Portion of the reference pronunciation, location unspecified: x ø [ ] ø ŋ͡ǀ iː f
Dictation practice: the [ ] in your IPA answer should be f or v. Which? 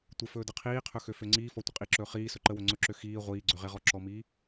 f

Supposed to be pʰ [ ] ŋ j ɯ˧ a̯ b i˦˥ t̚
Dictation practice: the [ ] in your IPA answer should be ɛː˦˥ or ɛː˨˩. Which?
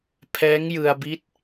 ɛː˦˥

